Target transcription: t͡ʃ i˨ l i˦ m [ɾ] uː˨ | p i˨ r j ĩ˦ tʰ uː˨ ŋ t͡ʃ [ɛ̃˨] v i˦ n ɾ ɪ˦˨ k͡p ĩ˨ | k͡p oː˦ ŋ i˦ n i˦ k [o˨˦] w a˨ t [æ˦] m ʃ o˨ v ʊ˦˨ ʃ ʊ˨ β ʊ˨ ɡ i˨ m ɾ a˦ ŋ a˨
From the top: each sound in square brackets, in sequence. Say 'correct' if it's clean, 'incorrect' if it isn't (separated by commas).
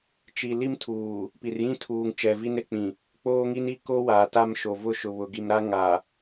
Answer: incorrect, incorrect, incorrect, incorrect